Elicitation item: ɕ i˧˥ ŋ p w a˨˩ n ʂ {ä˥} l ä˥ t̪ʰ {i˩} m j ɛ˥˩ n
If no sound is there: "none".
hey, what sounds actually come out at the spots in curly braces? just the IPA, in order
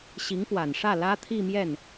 ä˥˩, i˥˧

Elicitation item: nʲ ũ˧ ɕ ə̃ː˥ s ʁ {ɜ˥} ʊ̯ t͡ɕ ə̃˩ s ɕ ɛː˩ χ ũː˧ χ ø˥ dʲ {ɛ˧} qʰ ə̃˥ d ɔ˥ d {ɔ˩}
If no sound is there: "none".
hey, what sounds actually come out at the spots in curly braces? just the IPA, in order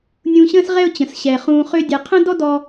ɛ˥, ɛ˧, ɔ˧

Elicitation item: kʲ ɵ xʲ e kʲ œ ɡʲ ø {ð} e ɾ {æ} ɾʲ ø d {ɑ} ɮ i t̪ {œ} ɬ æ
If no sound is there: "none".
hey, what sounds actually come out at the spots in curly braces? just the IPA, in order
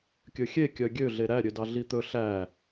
ɮ, æ, ɑ, ɵ

